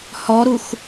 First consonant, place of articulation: glottal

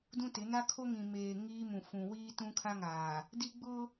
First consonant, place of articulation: alveolar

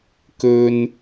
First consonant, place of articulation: velar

